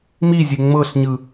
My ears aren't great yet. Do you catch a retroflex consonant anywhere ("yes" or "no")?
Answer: no